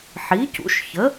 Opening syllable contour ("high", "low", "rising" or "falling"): rising